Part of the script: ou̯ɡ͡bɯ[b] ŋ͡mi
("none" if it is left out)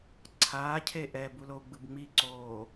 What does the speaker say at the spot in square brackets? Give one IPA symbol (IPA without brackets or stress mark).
b